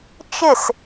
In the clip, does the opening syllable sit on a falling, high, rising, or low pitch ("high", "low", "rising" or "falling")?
falling